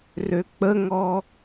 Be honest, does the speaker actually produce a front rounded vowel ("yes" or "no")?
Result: yes